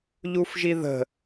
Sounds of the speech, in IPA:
ʎ u f ʒ i ð ə̤

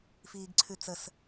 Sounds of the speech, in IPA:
f iː ɡ ǀʰ ʉ t͡s ə s

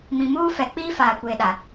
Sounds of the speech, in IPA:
m ĩ˨ m uː˦ f ɛ˨˦ k͡p iː˦ f aː˨ kʷ eː˨ ɗ a˨

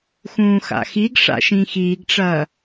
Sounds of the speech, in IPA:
x ũː x a̰ x i ɡ ʂ a̰ ʃ ĩ x iː ɡ ʈ͡ʂ ɐː

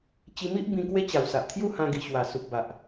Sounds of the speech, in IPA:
t͡ɕ i˧ m i˦ ʔ b ĩ˧ k w e˦ t͡ɕ a˨˩ w s a˨ ʔ t̪ʰ j u˥˧ h ã˧ ɡ i˨˩ ɕ w a˨˩ s u˨ p̚ b a˨ ʔ

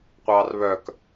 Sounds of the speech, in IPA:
qʷ ɑː r β œ k

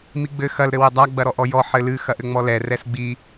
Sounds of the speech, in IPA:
m i ɡ͡b ɘ x ɐ l ɾ ɘ w ɘ dˤ a ɡ͡b ɐ ɾ ɔ ʔ ɔ j ɔ ħ ɘ l ɨ x ɐ ʔ ɘ ŋ͡m ɔ l ɛ r ɛ s ɡ͡b i

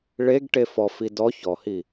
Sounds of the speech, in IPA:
ɭ e ɡ ʈ e f ɔ f i d ɔ ç ɔ h i

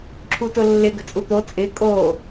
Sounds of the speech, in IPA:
ǁʰ u t ʊ lː ɪ ɡ ə̤ t͡sʼ u t̪ o t͡sʼ ɪ kʼ o

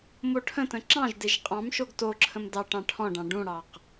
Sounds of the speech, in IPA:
m o ʈʰ ə̃ t ə̃ ǁ ɑ̃ ʒ d e ʒ qʼ ɑ̃ m ʃ o ɡ t o ǁʰ ə̃ m d ɑ ʈ ɑ̃ ʈʰ ɔ̃ ɖ ɑ̃ ɖ ũ ɽ ɑ q

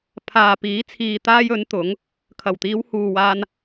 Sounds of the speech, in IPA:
pʰ aː˨ p iː˨˥ t͡sʰ iː˨ t̪ aː˧ j ɵ˨˥ n t̪ ʊ˨˥ ŋ | kʰ ɐ˨˩ w t̪ iː˨˧ w h uː˨ w aː˧ n

